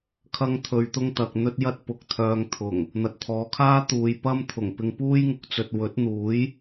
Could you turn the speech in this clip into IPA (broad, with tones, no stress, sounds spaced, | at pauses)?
kʰ ɐ˥ ŋ t̪ʰ ɵ˧ ɥ t̪ ʊ˥ ŋ t̪ ɐ˨ k̚ n̪ ɵ˥ t̚ j ɐ˥ t̚ p ʊ˨ k̚ t̪ʰ œː˧ ŋ t̪ʰ ʊ˨˩ ŋ | n̪ ɐ˨ t̚ t̪ʰ ɔː˨˧ kʰ aː˥ t̪ uː˨ j p ɐ˥ m t̪ʰ ʊ˨˩ ŋ p ɪ˧ ŋ p uː˥ j ŋ ʊ˨ k̚ t͡s ɵ˨ t̚ w ɵ˨˥ t̚ n̪ uː˨˥ j